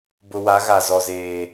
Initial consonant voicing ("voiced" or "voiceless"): voiced